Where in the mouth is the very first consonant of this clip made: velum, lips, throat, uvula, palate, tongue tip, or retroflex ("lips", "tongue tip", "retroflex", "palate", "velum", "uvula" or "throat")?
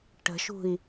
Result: retroflex